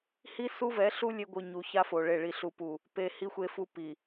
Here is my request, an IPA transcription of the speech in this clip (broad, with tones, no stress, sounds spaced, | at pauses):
h i˦ s u˦ v ɛ˨˦ ɬ u˦ lʲ e˦ ɡʷ ɯ˨ ɲ u˨ ç a˦ f o˨ ɭ e˨ ɭ i˨ ɬ u˨ p u˨ | p e˨ h i˦ xʷ e˦ f u˦ p i˨